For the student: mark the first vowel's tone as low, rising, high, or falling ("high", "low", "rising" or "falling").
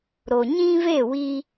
low